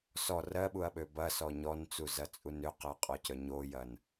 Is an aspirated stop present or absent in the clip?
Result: absent